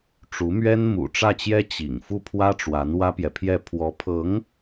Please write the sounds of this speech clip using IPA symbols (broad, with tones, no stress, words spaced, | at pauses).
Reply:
ʈ͡ʂu˧˥mɥɛ˥n mṵ˨˩ ʈ͡ʂä˥˩t͡ɕjɛ˥ t͡ɕḭ˨˩ŋ fu˥˩pʰwä˥ʈ͡ʂwa˧˥n wä˥pjɛ˨pʰjɛ˥˩ pʰwɔ˧˥pʰɤ˧˥ŋ